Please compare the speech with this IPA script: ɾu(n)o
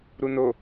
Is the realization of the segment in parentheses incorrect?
no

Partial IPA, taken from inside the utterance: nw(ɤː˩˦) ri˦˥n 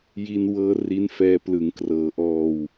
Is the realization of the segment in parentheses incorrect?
yes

